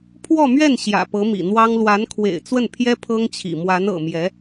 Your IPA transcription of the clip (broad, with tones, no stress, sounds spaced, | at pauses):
pʰ w ɔ˥˧ m ɥ ɛ˥˩ n ɕ j ä̰˨˩ p ɤ˧˥ m ḭ˨˩ n̪ w ɑ˥ ŋ l w a˧˥ n kʰ w ḛ˨˩ ɪ̯ t͡s w ə˥˩ n pʰ j ɛ˥ pʰ ɤ˥ ŋ t͡ɕʰ ḭ˨˩ m w a˧˥ n ɤ̰˨˩ m j ɛ˧˥